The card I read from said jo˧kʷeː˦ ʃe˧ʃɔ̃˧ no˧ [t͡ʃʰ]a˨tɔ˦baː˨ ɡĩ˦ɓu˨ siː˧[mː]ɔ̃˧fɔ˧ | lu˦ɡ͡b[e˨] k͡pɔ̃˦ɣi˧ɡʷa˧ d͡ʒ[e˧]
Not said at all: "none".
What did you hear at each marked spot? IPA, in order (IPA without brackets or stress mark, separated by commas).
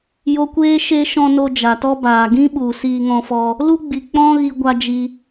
d͡ʒ, ŋ, i˨, i˧